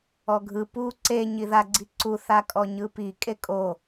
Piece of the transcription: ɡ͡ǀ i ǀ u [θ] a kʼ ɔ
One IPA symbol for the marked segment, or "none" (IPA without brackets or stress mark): θ